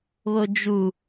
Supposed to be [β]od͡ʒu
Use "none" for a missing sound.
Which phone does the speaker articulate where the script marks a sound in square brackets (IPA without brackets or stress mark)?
β